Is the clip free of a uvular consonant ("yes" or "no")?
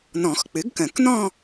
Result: yes